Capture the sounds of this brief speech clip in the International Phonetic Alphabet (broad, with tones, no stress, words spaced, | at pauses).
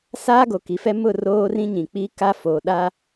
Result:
saː˦ɡo˨ ki˨˦fɛ˦ mʊ˦˨ roː˦rĩ˦ɲĩ˨ k͡pi˦ ka˦foː˨ ɗa˦